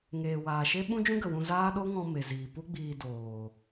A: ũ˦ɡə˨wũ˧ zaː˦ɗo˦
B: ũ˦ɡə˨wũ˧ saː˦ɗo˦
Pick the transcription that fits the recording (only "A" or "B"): A